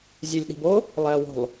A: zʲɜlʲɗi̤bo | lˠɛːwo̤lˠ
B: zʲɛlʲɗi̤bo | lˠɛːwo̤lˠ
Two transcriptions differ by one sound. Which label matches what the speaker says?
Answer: B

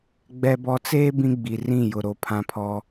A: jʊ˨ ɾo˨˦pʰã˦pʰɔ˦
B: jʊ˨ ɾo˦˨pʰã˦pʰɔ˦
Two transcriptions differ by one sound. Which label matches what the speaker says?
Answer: A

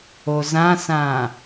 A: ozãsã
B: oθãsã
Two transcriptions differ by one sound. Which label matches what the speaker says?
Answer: A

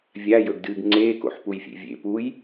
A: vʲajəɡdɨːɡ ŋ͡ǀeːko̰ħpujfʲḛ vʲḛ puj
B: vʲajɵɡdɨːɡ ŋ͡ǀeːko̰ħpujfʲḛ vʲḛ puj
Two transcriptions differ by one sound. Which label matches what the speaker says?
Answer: B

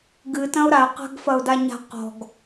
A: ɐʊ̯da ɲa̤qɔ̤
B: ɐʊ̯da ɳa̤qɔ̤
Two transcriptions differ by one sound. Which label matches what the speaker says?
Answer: A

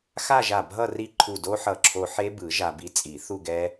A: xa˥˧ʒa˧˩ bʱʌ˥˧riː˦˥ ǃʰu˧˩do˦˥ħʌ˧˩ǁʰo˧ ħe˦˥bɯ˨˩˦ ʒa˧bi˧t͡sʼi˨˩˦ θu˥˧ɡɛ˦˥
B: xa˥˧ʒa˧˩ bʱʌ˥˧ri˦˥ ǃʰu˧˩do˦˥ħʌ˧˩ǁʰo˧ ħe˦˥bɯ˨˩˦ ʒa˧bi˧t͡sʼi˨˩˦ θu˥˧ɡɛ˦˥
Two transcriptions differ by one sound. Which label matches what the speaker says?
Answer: B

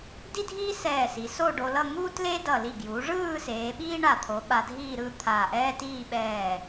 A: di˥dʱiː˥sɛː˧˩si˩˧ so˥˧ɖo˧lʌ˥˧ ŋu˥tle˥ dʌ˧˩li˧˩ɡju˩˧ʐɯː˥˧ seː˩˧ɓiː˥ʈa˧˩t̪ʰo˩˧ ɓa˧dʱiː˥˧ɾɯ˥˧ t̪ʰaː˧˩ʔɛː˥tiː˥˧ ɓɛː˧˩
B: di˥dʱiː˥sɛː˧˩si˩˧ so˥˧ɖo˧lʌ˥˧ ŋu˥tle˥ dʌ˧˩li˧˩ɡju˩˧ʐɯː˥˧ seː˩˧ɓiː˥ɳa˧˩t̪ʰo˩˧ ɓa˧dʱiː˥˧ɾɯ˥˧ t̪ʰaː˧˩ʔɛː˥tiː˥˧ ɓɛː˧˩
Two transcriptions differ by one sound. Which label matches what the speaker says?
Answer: B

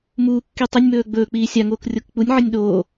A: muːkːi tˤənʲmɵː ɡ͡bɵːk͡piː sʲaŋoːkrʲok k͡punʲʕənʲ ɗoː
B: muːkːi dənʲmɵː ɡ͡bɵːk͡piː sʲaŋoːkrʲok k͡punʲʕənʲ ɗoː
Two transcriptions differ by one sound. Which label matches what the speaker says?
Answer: A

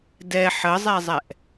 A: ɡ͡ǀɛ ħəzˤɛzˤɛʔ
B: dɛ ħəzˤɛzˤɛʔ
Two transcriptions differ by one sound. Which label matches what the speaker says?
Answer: B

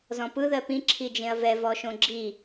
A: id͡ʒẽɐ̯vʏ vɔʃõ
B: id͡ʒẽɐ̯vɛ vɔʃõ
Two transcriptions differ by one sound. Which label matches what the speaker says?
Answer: B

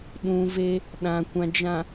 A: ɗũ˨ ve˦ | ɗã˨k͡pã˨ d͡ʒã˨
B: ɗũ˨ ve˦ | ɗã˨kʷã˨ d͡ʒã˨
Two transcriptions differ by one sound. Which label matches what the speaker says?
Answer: B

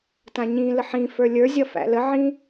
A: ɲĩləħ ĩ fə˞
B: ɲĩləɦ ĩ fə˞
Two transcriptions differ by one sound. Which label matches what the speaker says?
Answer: A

